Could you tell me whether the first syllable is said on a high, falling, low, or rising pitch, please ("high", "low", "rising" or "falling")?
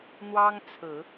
high